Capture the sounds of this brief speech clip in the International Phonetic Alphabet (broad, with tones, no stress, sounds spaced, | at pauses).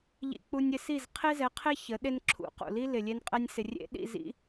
ʎ ḭ˧ k͡p u˧ nʲ ɪ˧ s i˦˨ z qʰ e˦ z ɛ˨˦ qʰ e˦ ç ə˨˦ ɗ e˦ n ǁʰ ṵ˨˦ q ṵ˨ l i˦ l ɪ˨ lʲ e˧ n qʼ ɛ˧ nʲ s ɪ˨ rʲ ḛ˦ ɗ ḭ˦˨ z ḭ˦